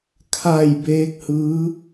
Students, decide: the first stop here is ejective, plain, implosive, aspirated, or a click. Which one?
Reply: aspirated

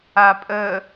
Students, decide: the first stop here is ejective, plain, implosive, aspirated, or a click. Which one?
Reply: ejective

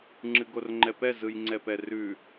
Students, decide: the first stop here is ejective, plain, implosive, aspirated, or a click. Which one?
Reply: click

